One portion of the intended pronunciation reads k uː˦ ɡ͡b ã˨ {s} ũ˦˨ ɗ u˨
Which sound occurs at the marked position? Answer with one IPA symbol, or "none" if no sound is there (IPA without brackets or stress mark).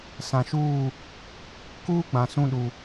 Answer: s